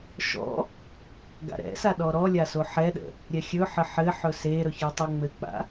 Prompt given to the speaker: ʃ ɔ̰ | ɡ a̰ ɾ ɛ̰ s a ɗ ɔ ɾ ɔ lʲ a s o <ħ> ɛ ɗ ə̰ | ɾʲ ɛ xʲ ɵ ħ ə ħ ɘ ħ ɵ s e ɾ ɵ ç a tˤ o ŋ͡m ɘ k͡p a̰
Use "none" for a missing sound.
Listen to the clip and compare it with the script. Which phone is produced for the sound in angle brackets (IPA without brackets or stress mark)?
ħ